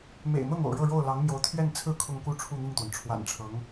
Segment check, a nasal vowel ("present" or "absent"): absent